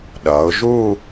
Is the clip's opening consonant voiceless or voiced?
voiced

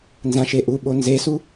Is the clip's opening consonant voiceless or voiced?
voiced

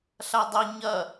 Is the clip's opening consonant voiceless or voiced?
voiceless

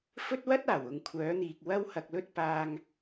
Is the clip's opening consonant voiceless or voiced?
voiceless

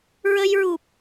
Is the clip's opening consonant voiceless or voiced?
voiced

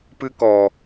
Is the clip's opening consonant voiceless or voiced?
voiceless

